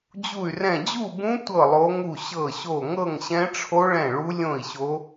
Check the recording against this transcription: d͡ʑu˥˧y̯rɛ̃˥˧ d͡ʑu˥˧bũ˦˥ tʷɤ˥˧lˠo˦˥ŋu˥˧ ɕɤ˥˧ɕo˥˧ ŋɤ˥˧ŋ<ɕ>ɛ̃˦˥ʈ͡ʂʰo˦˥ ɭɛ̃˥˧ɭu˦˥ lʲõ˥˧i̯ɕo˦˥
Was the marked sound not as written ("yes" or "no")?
no